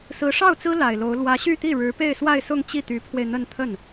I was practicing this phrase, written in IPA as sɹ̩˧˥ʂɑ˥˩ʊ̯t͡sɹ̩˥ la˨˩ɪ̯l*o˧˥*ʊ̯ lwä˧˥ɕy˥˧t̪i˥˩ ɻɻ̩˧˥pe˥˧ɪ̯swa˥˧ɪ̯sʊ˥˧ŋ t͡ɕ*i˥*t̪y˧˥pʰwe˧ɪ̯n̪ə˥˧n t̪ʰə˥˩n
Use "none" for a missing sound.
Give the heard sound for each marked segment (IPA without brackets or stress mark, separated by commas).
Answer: o˧˥, i˥˩